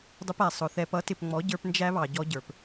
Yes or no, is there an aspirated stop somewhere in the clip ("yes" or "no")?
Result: no